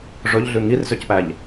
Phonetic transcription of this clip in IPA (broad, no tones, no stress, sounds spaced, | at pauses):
ʐ ɵ ʎ ɮ ʉ ŋ i r z ø c p æ ʎ